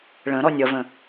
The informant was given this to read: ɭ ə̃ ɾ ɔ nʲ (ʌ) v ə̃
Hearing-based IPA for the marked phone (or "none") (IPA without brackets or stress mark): ʌ